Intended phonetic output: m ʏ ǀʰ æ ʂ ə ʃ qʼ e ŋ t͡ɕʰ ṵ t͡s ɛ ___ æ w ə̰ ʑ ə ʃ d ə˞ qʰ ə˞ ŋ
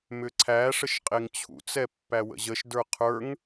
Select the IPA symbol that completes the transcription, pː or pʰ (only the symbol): pː